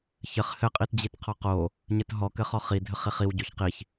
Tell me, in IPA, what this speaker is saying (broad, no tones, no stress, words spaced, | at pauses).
çɘχ hɘ qʼitd͡ʑitqʰɔqo | ɲɘtɦɔ kɘχɔχi dʱɘχiχiw ɟoçqiç